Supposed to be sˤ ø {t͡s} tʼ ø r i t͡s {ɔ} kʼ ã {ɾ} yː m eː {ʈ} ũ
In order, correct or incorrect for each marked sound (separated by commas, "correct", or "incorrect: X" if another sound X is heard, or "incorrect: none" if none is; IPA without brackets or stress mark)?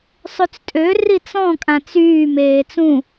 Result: correct, incorrect: ɔ̃, incorrect: t͡s, incorrect: t͡s